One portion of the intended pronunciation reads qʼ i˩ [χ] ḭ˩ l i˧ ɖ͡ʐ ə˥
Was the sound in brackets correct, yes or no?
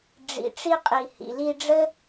no